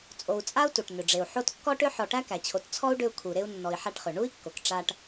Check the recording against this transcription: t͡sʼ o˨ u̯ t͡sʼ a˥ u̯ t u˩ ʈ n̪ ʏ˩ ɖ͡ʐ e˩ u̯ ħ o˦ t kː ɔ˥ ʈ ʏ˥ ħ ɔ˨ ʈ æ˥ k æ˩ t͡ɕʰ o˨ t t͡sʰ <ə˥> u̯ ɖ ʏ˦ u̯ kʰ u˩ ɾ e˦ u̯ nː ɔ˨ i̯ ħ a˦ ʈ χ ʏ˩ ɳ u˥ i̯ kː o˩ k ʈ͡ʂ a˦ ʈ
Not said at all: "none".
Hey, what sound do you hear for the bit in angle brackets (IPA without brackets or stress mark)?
ɔ˥